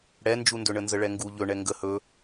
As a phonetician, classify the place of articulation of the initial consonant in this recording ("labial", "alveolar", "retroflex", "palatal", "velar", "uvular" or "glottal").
retroflex